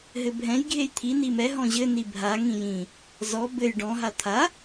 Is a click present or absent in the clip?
absent